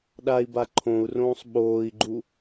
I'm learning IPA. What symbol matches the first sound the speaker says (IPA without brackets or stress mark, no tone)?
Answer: ɗ